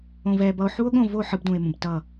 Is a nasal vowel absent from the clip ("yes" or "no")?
no